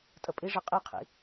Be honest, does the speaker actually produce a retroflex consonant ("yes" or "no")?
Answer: yes